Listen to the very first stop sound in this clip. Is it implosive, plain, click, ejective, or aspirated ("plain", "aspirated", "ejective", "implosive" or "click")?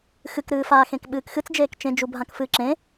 plain